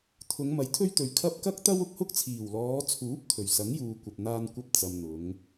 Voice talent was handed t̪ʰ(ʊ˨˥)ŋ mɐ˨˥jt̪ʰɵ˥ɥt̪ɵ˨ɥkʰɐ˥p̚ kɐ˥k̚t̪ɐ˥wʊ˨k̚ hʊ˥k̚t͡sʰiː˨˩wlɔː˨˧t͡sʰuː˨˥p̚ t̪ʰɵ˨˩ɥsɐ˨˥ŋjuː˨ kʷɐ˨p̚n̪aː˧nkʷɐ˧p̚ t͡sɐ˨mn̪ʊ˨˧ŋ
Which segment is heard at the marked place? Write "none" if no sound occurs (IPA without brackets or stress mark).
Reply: ʊ˨˧